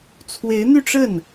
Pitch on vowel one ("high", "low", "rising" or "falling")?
rising